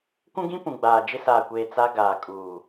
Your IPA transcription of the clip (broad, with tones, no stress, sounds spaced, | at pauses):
kʷ ũ˦ ɡ ĩ˦ p ũ˨ ɡ͡b aː˨ d͡ʒ ɪ˦ s aː˨ kʷ eː˨ t͡s a˦ ɡ aː˨ kʼ uː˨